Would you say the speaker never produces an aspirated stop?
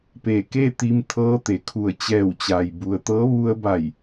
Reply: no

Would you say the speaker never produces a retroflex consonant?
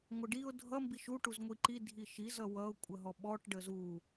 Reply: no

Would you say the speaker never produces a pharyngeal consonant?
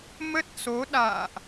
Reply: yes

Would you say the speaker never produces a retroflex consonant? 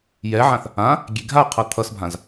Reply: yes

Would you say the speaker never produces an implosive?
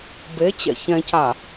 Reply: yes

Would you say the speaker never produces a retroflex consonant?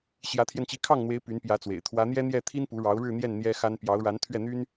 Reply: no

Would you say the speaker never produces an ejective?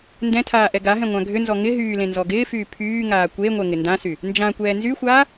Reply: yes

